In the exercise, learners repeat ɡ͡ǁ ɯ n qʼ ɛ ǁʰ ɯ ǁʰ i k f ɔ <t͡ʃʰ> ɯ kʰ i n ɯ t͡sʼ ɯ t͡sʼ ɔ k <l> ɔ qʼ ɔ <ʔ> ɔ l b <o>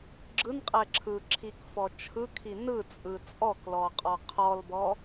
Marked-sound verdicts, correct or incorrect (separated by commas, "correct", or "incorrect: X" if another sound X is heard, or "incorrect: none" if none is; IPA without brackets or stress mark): correct, correct, incorrect: qʰ, incorrect: ɔ